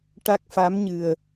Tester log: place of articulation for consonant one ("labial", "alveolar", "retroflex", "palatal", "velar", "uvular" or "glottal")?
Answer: retroflex